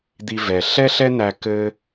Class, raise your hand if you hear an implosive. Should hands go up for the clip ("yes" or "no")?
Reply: no